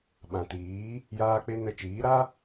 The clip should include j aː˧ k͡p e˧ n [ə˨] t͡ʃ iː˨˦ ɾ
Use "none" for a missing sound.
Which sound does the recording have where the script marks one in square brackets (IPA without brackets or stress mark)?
ə˧